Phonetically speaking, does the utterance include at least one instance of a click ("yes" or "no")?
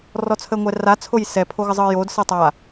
no